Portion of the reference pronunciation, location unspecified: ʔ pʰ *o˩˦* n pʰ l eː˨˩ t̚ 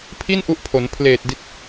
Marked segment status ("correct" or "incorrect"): correct